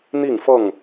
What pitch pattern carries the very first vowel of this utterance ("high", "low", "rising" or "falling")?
falling